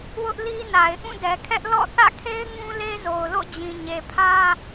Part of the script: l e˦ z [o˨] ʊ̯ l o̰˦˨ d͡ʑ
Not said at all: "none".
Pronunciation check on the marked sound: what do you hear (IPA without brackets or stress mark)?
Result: o˨